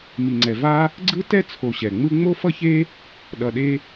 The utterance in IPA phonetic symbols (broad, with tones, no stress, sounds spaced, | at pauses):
m i˩ ŋ͡ǀ ɛ˩ v a˥ | ɡ͡ǀ ɯ˥ t ɛ˥ t͡sʰ o˨ ɕ ɛ˩ ŋ͡m ɯ˦ ŋ͡m o˦ f ʌ˦ ç e˦ | ɗ ʌ˨ ɗ e˦